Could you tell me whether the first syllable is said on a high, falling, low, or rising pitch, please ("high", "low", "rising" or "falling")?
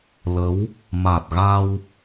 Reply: rising